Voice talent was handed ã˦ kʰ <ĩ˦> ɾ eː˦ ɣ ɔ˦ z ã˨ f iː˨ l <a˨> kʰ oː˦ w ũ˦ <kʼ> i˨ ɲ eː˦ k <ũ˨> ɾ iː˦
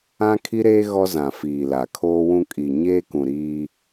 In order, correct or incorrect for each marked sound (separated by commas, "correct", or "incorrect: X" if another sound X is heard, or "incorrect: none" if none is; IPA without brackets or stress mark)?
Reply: incorrect: i˦, correct, correct, correct